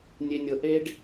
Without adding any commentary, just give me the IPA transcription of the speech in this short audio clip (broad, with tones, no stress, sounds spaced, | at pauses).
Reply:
nʲ e˥ nʲ ɤ˥ ʔ e˥ ɖ